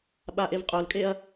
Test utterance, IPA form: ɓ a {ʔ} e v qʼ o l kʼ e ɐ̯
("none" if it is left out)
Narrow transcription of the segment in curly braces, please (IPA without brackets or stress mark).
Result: ʔ